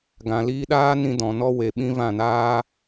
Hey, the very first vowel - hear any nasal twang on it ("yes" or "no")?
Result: yes